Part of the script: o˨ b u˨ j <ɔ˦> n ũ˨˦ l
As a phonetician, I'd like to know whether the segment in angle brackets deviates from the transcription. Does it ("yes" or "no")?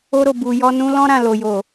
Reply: yes